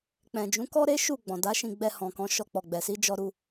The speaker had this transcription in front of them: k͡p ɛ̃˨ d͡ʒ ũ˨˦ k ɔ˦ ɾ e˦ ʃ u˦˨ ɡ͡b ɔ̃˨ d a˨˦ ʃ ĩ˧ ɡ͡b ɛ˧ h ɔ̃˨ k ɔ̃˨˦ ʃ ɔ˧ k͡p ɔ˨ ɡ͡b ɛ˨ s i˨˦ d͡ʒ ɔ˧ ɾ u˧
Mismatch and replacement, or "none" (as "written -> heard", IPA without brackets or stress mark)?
none